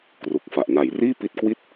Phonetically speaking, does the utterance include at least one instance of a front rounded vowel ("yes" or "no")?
no